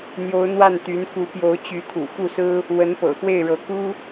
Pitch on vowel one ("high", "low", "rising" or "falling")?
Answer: rising